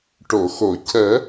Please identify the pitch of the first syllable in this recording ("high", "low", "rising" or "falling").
low